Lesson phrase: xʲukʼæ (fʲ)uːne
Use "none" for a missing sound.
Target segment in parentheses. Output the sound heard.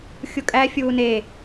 fʲ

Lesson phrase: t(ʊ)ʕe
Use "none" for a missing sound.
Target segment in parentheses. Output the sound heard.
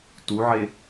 u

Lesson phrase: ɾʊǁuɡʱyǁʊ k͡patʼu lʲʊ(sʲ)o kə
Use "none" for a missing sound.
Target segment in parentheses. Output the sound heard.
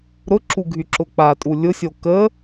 sʲ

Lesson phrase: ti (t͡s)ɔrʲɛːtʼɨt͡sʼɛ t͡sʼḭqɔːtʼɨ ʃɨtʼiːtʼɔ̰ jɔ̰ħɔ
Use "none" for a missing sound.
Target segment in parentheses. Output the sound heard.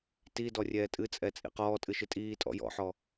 d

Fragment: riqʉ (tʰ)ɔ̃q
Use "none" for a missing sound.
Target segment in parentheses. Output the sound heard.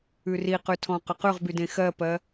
tʰ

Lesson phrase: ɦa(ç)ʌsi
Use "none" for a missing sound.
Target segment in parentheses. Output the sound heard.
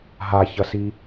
ç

